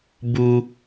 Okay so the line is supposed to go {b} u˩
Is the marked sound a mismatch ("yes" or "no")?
no